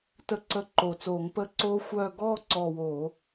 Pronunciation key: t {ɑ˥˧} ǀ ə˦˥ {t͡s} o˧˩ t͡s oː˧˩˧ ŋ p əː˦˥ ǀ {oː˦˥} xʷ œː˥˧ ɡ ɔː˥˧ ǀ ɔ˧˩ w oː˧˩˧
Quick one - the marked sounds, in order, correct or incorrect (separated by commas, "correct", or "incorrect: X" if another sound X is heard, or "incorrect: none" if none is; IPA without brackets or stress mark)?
incorrect: ə˥˧, incorrect: ǃ, correct